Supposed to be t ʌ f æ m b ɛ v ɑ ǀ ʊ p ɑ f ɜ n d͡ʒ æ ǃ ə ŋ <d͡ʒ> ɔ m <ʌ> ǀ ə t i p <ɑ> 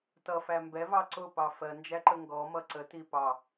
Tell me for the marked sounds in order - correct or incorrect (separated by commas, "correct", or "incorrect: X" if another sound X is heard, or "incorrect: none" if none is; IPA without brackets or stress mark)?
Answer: incorrect: ɡ, correct, correct